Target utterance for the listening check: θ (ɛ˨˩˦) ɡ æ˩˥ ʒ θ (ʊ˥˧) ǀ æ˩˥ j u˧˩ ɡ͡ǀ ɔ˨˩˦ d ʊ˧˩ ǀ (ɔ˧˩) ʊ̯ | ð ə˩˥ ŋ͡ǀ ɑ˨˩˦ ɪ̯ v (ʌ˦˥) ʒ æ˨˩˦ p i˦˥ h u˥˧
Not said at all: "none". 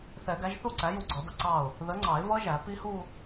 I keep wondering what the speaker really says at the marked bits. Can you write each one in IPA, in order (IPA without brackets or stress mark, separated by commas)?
ɛ˨˩˦, u˥˧, ɑ˧˩, ʌ˦˥